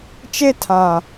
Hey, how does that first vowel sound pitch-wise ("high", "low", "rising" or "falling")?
high